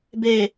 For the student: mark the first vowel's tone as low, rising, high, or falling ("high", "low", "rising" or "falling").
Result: low